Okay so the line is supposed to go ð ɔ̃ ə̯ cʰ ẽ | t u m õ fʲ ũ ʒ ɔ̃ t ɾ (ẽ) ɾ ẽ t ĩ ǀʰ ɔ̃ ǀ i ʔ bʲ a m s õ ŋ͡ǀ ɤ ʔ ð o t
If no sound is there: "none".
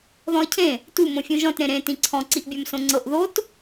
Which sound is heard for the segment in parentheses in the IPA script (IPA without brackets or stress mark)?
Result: ẽ